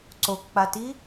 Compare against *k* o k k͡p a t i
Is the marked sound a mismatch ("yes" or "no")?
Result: yes